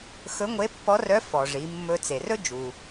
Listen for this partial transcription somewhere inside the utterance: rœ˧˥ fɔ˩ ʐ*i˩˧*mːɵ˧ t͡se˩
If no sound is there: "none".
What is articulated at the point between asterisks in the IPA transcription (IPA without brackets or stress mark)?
i˩˧